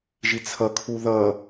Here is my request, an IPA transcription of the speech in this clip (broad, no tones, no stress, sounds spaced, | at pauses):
ʒ i t͡sʰ ʌ kʰ u ð ʌ